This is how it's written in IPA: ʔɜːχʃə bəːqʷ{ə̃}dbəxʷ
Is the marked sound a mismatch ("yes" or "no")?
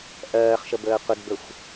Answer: yes